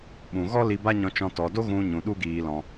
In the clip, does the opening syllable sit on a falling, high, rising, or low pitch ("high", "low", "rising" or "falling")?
low